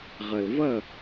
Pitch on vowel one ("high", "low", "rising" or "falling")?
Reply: low